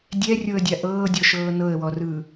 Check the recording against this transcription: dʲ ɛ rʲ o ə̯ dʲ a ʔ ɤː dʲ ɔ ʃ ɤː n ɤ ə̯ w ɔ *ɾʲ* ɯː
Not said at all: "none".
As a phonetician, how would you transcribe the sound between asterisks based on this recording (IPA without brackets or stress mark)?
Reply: r